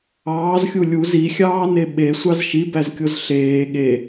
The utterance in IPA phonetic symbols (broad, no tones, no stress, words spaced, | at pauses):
ɑːzxʲu lʲuz ixʲɑːne ɓesʷɑz ʃibæzkʲoz ɬeː ɠe